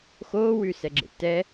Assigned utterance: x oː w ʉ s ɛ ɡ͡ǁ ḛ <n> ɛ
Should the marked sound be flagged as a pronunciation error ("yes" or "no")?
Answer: yes